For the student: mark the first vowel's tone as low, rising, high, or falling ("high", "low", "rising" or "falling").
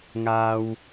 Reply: low